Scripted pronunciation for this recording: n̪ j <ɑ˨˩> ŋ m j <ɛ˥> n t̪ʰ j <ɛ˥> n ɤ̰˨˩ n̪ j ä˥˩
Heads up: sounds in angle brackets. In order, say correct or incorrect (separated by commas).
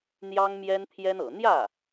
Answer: incorrect, correct, correct